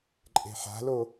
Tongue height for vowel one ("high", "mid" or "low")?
mid